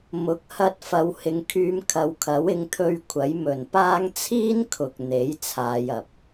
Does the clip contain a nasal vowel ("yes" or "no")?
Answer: no